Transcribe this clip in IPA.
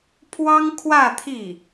pʰ w ɑ˥ ŋ kʰ w ä˥˧ t̪ʰ i˥˩

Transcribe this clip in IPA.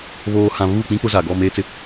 β oː˨ h ã˨ β u˦˨ k͡p ĩ˦ k͡p ʊ˦ z a˨ ɡ ɔ˦˨ m eː˦ t͡s ɪ˦

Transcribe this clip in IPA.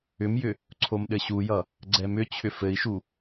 ʏ m j ʏ | ǀʰ o m ɗ ɘ ɕ u j ʌ | ɡ͡ǀ ɛ m ʏ t͡ɕʰ ʏ f ɘ i̯ ʃ u

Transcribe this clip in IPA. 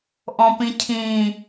ʔ ɔ̃ p ĩ cʰ ĩ

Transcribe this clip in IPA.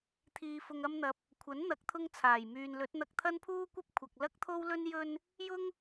t̪ʰ iː˧ f ʊ˧ ŋ ɐ˧ m n̪ ɐ˨˥ p̚ | kʷʰ ɐ˨˥ n n̪ ɐ˨˥ k̚ t̪ʰ ʊ˧ ŋ t͡sʰ aː˨˩ j m yː˨ n l ɵ˨˥ t̚ n̪ ɐ˧ k̚ t̪ʰ ɐ˥ n pʰ uː˥ kʷ ɐ˥ p̚ kʷʰ ɐ˨ k̚ l ɐ˥ k̚ t̪ʰ o˥ w l ɵ˥ n j ɵ˧ n | j ʊ˥ ŋ

